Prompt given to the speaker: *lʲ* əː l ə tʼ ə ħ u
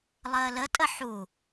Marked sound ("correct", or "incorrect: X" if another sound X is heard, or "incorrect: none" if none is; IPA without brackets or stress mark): incorrect: lˠ